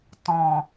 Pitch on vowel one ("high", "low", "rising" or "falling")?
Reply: low